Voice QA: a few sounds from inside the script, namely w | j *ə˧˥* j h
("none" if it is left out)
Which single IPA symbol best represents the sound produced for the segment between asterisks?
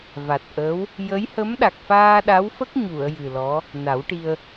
ə˧˥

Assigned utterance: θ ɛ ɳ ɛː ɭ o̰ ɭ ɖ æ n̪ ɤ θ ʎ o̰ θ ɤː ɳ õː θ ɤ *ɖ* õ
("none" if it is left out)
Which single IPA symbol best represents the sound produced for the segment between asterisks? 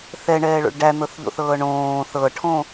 ʈʰ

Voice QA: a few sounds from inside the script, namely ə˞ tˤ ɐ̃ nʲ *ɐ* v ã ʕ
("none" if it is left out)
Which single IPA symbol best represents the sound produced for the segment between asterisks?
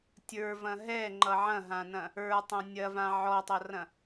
ɐ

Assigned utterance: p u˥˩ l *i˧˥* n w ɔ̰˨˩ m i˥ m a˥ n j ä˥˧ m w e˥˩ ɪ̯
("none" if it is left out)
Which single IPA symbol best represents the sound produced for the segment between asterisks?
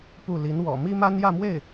i˧˥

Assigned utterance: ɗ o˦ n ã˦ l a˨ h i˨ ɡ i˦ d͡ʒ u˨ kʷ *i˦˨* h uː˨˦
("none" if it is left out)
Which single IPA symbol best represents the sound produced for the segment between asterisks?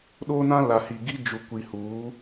i˨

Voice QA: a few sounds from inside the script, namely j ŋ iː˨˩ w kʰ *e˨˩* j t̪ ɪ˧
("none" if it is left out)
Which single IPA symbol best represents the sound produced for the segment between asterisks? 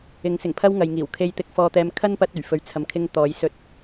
e˧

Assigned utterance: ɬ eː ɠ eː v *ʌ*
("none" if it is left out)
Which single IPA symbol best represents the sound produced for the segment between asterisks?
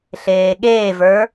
ə˞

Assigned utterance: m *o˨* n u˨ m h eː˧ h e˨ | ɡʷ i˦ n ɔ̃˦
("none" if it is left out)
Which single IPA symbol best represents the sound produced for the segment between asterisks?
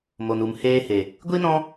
o˨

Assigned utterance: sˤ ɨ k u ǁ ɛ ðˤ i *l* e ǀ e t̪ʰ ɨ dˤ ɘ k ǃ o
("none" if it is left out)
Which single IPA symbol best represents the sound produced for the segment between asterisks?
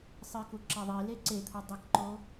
l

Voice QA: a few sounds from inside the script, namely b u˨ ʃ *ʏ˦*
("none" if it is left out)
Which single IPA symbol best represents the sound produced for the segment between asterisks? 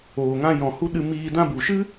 ɨ˦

